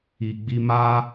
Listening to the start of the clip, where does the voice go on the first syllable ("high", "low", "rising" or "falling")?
low